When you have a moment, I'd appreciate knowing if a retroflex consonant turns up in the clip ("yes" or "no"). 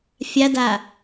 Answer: no